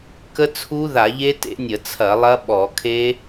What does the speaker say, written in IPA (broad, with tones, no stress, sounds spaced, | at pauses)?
k ə˦˥ t͡sʰ u˦˥ ð a˧˩˧ ʎ e˦˥ t ḛ˦˥ nʲ ə˧˩˧ t͡sʰ ɐ˧˩˧ lˠ ɐ˦˥ ɓ ɔ˧˩˧ kʰ e˦˥